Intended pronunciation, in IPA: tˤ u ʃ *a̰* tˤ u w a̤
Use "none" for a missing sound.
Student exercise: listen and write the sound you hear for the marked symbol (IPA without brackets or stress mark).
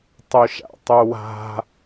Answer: a̰